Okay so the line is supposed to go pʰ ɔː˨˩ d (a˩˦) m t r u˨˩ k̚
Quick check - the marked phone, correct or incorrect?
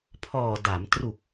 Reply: correct